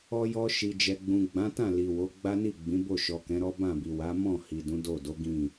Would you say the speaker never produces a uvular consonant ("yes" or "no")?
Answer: yes